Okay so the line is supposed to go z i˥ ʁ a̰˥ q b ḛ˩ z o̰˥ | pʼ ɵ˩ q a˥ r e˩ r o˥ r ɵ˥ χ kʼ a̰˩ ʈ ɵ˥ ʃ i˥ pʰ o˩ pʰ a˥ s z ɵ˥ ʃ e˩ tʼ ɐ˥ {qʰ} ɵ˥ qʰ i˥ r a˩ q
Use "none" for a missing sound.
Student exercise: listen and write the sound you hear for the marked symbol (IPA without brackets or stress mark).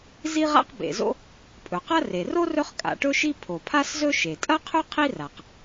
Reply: qʰ